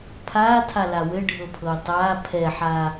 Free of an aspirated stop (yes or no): no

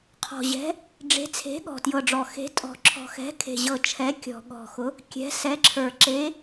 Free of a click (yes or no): no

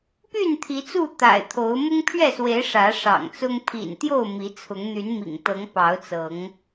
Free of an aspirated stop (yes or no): no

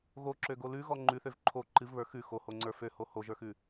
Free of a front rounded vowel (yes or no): no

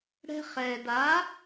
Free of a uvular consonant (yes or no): no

